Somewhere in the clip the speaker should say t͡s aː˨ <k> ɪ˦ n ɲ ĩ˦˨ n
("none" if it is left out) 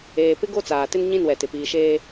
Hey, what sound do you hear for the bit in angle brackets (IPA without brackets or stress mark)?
t